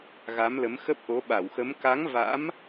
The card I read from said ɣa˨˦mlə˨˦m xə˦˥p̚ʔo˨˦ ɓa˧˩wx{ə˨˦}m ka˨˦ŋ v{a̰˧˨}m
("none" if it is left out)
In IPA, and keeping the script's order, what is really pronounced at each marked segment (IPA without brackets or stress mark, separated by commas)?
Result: ə˨˦, a̰˧˥